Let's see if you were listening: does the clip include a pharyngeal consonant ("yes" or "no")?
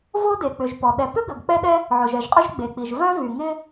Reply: yes